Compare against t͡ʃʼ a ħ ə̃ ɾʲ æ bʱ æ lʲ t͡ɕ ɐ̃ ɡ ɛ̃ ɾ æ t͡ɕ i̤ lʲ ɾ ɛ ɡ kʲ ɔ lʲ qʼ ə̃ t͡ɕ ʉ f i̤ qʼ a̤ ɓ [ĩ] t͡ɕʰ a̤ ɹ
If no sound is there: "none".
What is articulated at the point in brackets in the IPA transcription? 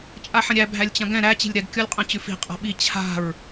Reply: i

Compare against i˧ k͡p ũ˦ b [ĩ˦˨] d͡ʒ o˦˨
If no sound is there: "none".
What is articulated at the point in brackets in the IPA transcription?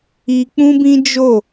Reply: ĩ˦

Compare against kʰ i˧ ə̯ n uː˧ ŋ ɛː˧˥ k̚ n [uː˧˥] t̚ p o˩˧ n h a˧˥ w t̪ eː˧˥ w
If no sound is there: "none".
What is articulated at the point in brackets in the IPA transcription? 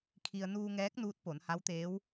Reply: uː˧˥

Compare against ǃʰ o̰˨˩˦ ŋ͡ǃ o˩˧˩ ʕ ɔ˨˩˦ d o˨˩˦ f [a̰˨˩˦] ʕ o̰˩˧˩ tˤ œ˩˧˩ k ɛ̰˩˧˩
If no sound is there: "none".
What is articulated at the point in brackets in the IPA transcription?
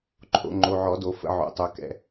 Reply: ə̰˨˩˦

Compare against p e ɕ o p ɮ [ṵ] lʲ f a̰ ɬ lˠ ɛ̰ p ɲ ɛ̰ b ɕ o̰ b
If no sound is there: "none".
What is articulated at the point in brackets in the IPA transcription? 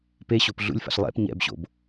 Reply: ṵ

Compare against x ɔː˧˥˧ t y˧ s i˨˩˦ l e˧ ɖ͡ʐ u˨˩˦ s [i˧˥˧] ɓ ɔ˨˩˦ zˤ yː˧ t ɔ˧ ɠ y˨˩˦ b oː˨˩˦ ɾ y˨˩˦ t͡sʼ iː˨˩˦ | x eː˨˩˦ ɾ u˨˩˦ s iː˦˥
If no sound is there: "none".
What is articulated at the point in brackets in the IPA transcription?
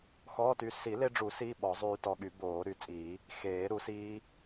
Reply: i˧˥˧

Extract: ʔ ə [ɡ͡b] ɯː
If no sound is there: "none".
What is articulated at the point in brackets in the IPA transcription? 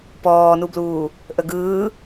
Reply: ɡ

